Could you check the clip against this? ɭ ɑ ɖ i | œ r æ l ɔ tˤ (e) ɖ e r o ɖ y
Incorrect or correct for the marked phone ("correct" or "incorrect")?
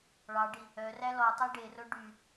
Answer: correct